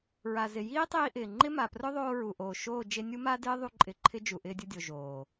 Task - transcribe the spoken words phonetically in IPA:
ɹ a˨ z ɪ˨ j iː˦ tˤ iː˧ ʔ ɪː˨ ŋ͡ǃ ɪ˦ m a˨ p r ʊ˦ ðˤ oː˧ ɹ u˨ ʔ oː˨ ʃ oː˦˨ d͡ʒ e˧ nʲ u˦ m a˦ d ɪː˦ ðˤ u˦ ǃʼ ɪ˧ ǃʰ ɪ˦ d͡ʒ u˨ ʔ ɪː˧ dʲ ʊ˧ dʲ o˨ ʒ oː˨

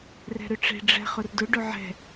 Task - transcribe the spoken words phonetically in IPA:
r ɛ̤ ɾ ʏ ʈ͡ʂ e̤ ɖ͡ʐ ɛ̤ χ ʊ r d ʊ ɖ ʊ ʕ ɛ̤

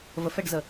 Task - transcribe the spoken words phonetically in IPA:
v ə f ɛ ɖ z ə

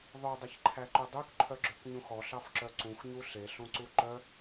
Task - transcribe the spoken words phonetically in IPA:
ðˤ ɵ dˤ e ç ǃʰ æ ǃ ɵ dˤ ø k ǃʰ œ ɡ͡ǁ ø k ɲ ũ x ɔ ɬ ɑ f ǁ œ ǀ ũ x ɲ u ɬ e ɬ ũ ǀ u ǃ œ

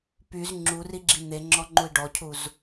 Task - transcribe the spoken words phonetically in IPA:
p y z ŋ͡ǁ u r i ɡ͡ǁ i n̪ e ŋ͡ǁ ɔ ŋ͡ǃ u i̯ ɖ ɔ cʰ u z

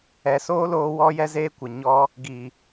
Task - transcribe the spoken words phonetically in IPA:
ɛ˨ s oː˦ l oː˧ w ɔ˦ j ɛ˦ z eː˦ kʷ ə˨ ɲ ɔ˧ | ɡ i˨

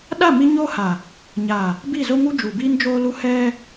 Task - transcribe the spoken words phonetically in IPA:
ɗ a˦˨ m i˦ ɲ oː˦ h a˨ | ɲ a˨ | b i˦˨ z o˦ ŋ u˦ d͡ʒ u˨ b iː˦ n d͡ʒ oː˦ l u˦ h ɛ˦

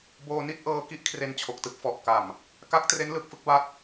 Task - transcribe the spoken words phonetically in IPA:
b oː˧ n i˥˩ t̚ ʔ ɤː˧ k i˥˩ ʔ kʰ r e˧ n t͡ɕʰ o˨˩ k̚ t ɯ˥˩ k̚ f ɔ˨˩ ʔ k a˨˩ m | k a˦˥ k̚ t r e˦˥ n l ɯ˨˩ k̚ f ɯ˥˩ k̚ b a˥˩ t̚

